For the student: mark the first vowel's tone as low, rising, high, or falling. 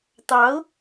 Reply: rising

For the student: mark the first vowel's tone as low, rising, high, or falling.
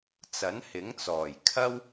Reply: rising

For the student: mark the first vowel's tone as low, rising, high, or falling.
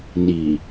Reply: low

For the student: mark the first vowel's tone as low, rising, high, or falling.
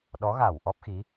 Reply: rising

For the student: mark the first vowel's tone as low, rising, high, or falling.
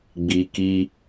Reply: low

